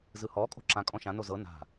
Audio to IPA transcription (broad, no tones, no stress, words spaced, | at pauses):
zɯhɔ kʼo̤ǁã kʼɔ̃ʃã nozɤ na̤